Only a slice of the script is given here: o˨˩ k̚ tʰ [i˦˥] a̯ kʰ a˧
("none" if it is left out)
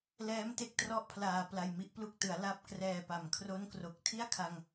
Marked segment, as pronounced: i˥˩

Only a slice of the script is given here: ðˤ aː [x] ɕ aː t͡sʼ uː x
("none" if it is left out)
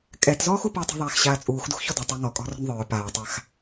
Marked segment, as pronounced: x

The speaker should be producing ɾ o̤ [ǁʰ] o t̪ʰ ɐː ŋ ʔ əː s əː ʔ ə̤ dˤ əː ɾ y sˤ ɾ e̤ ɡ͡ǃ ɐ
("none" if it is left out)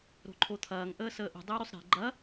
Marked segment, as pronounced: ǃʰ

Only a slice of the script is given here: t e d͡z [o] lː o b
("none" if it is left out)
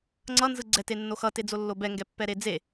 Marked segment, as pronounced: o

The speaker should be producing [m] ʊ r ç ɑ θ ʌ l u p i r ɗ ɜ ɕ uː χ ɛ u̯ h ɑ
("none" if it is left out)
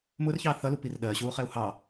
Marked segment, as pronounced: m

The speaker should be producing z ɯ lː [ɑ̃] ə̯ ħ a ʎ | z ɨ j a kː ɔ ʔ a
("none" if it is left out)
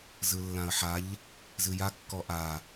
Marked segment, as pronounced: ã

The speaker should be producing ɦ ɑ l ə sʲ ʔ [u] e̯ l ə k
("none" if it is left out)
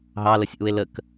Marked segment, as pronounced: u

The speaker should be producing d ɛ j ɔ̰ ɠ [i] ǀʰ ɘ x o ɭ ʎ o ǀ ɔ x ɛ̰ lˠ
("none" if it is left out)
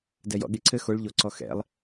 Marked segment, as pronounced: i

